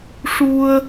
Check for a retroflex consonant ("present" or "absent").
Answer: present